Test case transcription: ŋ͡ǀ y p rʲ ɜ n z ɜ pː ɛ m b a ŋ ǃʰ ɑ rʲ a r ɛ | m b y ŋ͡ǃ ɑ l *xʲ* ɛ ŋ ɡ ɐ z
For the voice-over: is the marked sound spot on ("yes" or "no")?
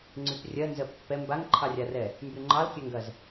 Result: no